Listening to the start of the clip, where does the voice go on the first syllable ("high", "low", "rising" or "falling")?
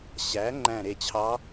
rising